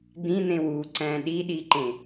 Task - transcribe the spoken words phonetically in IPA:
d̪ĩn̪ẽw uǀæ̃ ɗiɗiǃẽ

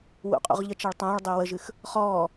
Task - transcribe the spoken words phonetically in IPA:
wṵqʼṵʁʎət͡ʃaɭ tˤãːɭ dˤʊːwəʒɨx | χɔː

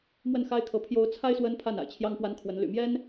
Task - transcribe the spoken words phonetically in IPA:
mwə˥˩nxa˥ɪ̯kʰɤ˧˥ pʰjo˧˥ʊ̯t͡sʰa˥ɪ̯ swə˥npʰa˥˩n a̰˨˩ɪ̯t͡ɕʰjɑ˥ŋpwa˥nkʰwə˧˥n ly̰˨˩mjɛ˥n

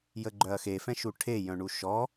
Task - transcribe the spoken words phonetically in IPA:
jəɡ͡ǃœɐ̯xe fɛ̃ʃuʈʰe jœ̃ɳuʃɔ

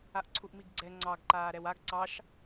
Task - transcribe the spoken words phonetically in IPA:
aʔǀʰuʔmiɡɡ͡ǀɛ ŋ͡ǀɑɡ ǃaːɾɛwaɡ ǀɑʃ

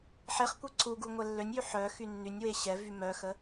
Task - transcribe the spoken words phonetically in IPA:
ħeχkʷe ǀuɡu ŋʷɛlːønʲjy ħœ xynːynʲwe ɕɛvy mœxə

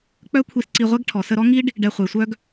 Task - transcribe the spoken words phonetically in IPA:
k͡pœ˦kʷʰi˧sǀi˧ʁʷɛ˦ɡ ʈʰɔ˨ sə˧ɾɔ˦ŋi˦ɖ | ɖɛ˧χʷe˨ sʷœ˦ɡ

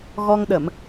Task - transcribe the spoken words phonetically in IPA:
ɣɔ˧ŋɗə˧˩˨m

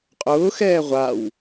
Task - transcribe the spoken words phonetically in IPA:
qʼʊːxɛː ʁʷaw

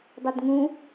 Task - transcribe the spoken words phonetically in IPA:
dˤədŋũ

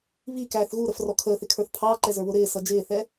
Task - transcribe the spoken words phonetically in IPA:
βikæːθ ɣuɾəfrɔ kʰəːθɪkʰə˞θ pʰɑǃɛzə˞βʊ ɾɪːsʌ d͡ʒɪːθɛ

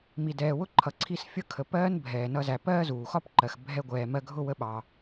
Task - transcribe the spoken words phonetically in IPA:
mi˨dɛː˨wʊ˥ ǃʰʌ˨ǀʰi˦sfʲʌ˥ kʰə˨ pɜː˥n bʱɛː˨nʌ˦zæ˨ pɜː˥zuː˩xɒ˥p ǃɜ˨x bʱɛ˦ɡʷɛː˨ mɜ˦ɡʱʊ˥ wə˦ɓɑ˨

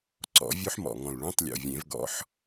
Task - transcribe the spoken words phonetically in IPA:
ǀɔ̰˨˩˦vʲo˦˥ħmɔ̰˨˩ŋɔ̃˨˩l ɭõ˧˥˧tˤlʲo̰˨˩vʲẽ˨˩˦v ɡɔ̰˦˥ħ

